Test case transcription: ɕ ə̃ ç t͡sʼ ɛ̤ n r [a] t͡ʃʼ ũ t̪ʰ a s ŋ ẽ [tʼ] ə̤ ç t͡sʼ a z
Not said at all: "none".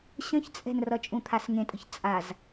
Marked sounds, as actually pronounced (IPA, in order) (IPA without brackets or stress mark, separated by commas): ʌ, tʼ